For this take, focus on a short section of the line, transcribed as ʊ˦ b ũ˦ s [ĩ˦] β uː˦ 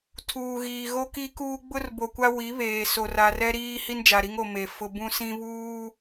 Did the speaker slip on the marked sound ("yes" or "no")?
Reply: no